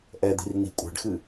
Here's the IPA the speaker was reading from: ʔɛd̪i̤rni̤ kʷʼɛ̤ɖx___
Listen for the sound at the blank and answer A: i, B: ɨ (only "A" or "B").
B